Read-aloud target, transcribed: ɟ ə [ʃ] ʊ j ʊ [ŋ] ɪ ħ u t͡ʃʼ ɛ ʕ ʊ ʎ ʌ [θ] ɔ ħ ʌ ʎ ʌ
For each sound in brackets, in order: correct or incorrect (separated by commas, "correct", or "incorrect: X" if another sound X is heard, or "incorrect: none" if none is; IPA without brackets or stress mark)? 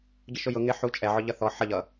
correct, correct, correct